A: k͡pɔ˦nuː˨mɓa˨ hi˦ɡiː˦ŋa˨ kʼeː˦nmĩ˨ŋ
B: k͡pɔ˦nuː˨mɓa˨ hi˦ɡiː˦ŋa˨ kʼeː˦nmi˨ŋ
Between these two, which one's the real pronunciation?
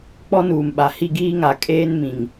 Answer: A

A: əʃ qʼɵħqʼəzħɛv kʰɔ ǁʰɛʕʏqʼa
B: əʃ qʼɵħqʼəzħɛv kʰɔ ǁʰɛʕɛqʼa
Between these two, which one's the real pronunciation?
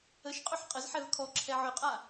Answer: A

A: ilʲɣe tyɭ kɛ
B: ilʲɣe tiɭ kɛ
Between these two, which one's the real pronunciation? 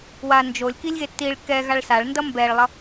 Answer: B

